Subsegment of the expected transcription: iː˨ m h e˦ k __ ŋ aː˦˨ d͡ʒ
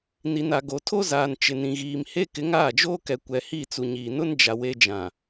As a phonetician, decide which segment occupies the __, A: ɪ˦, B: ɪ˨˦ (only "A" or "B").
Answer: B